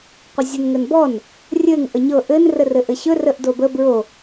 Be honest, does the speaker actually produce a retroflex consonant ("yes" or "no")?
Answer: no